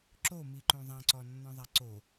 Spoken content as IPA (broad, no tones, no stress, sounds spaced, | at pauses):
ǁ o m i ǃ õ ðˤ ã ǀ ɔ nː ɔ̃ ðˤ a ǀ o